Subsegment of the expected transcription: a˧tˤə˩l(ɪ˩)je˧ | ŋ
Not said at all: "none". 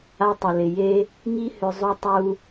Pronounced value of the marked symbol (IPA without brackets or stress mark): ɪ˩